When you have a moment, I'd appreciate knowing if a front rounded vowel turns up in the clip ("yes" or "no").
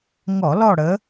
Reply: no